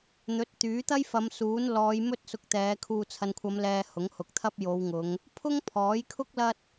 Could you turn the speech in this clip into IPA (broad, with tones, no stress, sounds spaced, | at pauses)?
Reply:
n̪ ɵ˨˥ t̚ t̪ yː˨˥ t̪ ɐ˥ j f ɐ˨˧ m s uː˨˥ n l ɔː˨˧ j m ɵ˥ t̚ s ʊ˧ k̚ t̪ ɛː˨˧ kʰ uː˨ t͡sʰ ɐ˨ n kʷʰ ɐ˨˧ m l ɛː˨ h ʊ˨˥ ŋ h ʊ˨ k̚ t̪ʰ ɐ˥ p̚ j o˨˧ w ŋ ʊ˨˧ ŋ | pʰ ʊ˥ ŋ pʰ ɔː˨˥ j kʰ ʊ˥ k̚ l ɐ˥ t̚